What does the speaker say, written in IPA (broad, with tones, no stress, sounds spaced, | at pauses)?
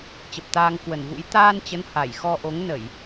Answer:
t͡ɕ ə˨˩ p̚ t̪ aː˧ ŋ k w ə˧˩ n v ṵ˧˥ j t̪ aː˧ n t͡ɕ ə˨˦ n h a˧˩ j x ɔ˧ ʔ o˨˦ ŋ n ə˧˩˨ j